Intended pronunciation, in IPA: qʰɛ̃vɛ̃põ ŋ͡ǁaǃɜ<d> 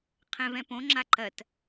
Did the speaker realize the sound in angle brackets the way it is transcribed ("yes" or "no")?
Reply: no